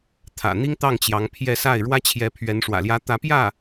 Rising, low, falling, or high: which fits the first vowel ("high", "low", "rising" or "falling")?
low